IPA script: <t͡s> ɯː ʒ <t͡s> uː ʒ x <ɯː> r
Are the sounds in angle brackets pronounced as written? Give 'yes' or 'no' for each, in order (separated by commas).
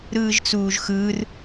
no, yes, yes